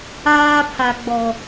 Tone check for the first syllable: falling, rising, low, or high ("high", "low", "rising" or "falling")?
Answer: high